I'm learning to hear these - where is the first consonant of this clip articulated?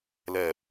tongue tip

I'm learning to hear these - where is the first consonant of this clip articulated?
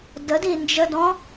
tongue tip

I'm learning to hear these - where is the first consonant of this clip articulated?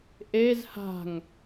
throat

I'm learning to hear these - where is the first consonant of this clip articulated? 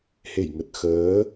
throat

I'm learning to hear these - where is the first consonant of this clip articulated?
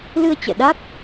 tongue tip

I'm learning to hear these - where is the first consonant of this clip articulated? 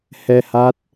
throat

